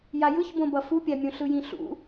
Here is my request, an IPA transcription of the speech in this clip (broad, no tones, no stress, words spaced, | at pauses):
jajɯçbõbʌ fupʲamʲõ ɬɯjĩɬṵ